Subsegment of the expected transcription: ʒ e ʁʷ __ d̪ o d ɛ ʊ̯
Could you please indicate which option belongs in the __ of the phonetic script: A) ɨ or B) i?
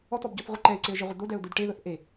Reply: A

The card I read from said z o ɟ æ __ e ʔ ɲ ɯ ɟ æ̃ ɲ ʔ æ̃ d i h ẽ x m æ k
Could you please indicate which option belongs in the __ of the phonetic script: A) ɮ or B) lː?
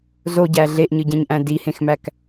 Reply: A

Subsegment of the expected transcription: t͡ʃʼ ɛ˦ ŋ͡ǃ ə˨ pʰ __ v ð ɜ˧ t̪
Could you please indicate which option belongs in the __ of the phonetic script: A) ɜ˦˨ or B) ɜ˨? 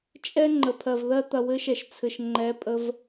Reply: B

